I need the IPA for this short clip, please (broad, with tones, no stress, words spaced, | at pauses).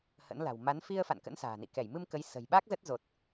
hə̰˧˥nla̤˨˩w ma˨˦n fi˧ə̯ fa̰˧˨nkə̰˧˥nsa̤ː˨˩nḭ˧˨ kɛ˧˩jmɨ˧m kə˨˦j sə̤˨˩jɓa˦˥k̚ zə˦˥t̚zo˨˩t̚